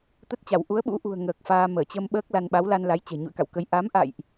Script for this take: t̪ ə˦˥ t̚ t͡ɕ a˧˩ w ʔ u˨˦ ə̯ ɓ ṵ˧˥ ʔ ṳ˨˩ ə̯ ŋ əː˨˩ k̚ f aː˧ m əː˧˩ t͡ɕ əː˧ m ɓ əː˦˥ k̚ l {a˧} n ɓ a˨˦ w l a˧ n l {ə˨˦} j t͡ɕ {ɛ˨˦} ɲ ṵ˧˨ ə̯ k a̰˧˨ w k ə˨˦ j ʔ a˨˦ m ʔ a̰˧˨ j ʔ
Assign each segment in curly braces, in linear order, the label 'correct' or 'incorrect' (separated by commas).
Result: correct, incorrect, incorrect